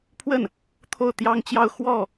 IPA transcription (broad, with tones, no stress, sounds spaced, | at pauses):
pʰ w ə˥˩ n | t̪ʰ o˥˩ ʊ̯ t̪ j ɑ˥ ŋ t͡ɕ j ɑ˥˧ ʊ̯ x w ɔ˥˩